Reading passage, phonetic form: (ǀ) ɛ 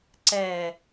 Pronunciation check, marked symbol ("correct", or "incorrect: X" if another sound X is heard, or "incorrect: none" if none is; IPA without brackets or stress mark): correct